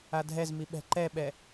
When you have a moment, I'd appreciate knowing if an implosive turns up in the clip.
yes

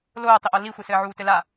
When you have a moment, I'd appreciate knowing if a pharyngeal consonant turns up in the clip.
yes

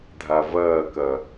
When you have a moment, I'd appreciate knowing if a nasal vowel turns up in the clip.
no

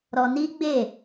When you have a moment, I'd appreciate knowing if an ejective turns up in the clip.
no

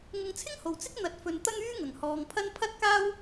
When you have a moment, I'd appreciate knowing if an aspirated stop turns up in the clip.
yes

